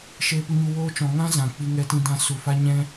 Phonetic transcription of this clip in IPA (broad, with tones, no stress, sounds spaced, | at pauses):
ʃ eː˧ p u˧ ɲ u˧ w oː˧ t͡ʃ ɔ̃˨ ŋ ã˦ z ã˨ k͡p i˧ ŋ ɛ˧ t ĩ˧ d ã˧ s u˨ f a˦ ɲ ɛ̃˦